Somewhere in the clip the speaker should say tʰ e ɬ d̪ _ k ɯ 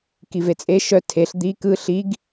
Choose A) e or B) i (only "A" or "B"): B